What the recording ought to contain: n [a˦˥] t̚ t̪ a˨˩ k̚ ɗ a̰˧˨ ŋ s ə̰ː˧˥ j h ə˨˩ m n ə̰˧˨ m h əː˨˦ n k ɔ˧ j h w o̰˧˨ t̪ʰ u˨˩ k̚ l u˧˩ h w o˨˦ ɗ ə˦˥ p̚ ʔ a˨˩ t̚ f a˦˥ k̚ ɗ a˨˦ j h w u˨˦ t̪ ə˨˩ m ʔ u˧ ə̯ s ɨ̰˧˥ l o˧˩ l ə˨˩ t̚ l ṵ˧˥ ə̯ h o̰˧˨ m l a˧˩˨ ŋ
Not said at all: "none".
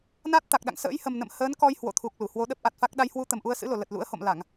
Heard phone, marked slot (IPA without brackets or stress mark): a˦˥